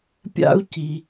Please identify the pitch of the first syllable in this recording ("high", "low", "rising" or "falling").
high